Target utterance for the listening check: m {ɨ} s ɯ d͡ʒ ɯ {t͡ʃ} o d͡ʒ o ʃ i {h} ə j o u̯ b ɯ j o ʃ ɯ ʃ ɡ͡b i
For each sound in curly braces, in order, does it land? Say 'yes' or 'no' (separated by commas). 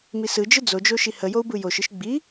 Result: no, no, yes